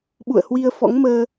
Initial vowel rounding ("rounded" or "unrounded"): rounded